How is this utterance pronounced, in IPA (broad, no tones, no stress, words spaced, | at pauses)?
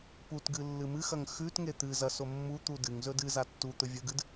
putɡɨ lːɨmɨxɐŋ xʉtŋe t̪ɨ zɐso mːut̪u dɨŋzɵ dɨza tːut̪ɵ vʲɵɡɨd